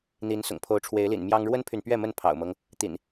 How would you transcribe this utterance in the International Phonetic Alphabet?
n̪ i˨˦ n s ʊ̰˨˩ ŋ pʰ o˨˦ ʊ̯ ʈ͡ʂʰ w e˨˦ ɪ̯ l ḭ˨˩ n m j ɑ˦ ŋ ɻ w ə˦ n pʰ y˨ n p ɥ ɛ˥˨ m ə˥˨ n pʰ ɑ̰˨˩ ʊ̯ m ɤ˦ ŋ | t̪ ḭ˨˩ n

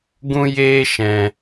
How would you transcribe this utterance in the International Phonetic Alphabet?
ɡ ũ˦ j eː˦ ʃ ɛ̃˧

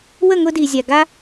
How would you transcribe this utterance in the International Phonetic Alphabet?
w ə˦˨ ŋ ʊ˧ d i˨ zʲ a˨ ɡ a˦

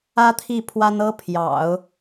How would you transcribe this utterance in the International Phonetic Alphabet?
ä˥ t̪ʰ i˥˩ pʰ w a˥ n ɤ˥ pʰ j ɑ̰˨˩˦ ʊ̯

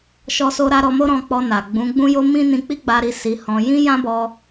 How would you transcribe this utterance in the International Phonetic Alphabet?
ʃ ɔ˧ s o˧ ɾ a˧ ɾ ɔ˧ m o˦ ɾ ɔ̃˧ k͡p ɔ˧ n a˨ ɡ͡b ũ˨˦ ɡ͡b ũ˦ j o˦ m ĩ˦ n ĩ˧ k͡p i˦ ɡ͡b a˧ ɾ i˧ s i˧ h ɔ̃˧ j ĩ˦ j ã˦ b ɔ˧

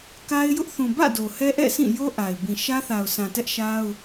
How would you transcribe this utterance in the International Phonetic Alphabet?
k a˦ ɪ̯ j ʊ˦ ʔ θ ũ˨ b ä̰˦˨ d o˨ h ɛ˦ ʔ ɛ̰˦˨ sʰ ĩ˦˨ j o˦ ʔ a˨ ɪ̯ b ĩ˨ ʃ ä˦ θ a˨ ʊ̯ sʰ ã˨ t ɛ˦ ʔ ʃ a˦ ʊ̯

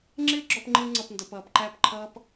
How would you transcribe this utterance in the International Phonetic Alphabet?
ŋ͡ǁ ɪː˦ ɡ͡ǁ ɔ˧ p ŋ͡ǃ ɪː˧ ŋ͡ǀ ʌ˨ p n d ʌ˨ p ʌː˨ p ǃ æ˦˨ p ǃʰ ʌː˦ p

